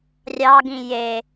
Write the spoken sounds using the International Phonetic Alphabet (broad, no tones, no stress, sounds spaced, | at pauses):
rʲ ɑ ɡ ĩ j e